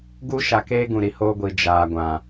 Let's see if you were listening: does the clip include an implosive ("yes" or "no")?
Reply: no